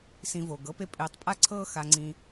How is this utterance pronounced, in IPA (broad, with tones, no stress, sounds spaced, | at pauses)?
s ĩ˧ v o˨ ɡ ɤ˦ p e˧ pʼ ɪː˨˦ tˤ pʼ a˦ ǀʰ ɤː˦ x a˧ ŋ͡ǀ ĩ˧